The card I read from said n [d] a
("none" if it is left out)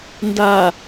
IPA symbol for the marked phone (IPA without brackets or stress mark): d